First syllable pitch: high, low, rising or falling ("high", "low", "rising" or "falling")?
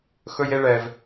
high